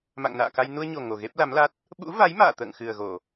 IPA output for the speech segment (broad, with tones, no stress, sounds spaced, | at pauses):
m a̰˧˨ ŋ n a̰ː˧˨ k a˧ j n u˧ ə̯ ɲ o˨˩ ŋ o˨˩ ɣ e˦˥ p̚ l a˨˦ m l a˦˥ t̚ | ɓ ṵ˧˥ v a˨˦ j m a̰ː˧˨ t̪ ə̰ː˧˨ ŋ x ɨ˨˩ ə̯ ɣ o˧˩˨